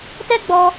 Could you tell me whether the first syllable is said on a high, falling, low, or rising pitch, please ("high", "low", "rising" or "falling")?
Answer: high